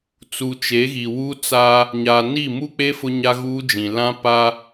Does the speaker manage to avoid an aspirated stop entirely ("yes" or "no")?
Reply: yes